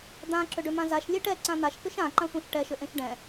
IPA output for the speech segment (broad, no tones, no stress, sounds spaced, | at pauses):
d̪ ã ǁ ʏ ɖ ʏ m ã z a ʃ lʲ e ʈ ɛ ǀ ã n̪ a ʃ k ʏ ʃ ã ǃ ã sʷ ã ʃ ʈ ɛ ʃ ʏ ʔ ẽ ʃ ɖ ɛ̃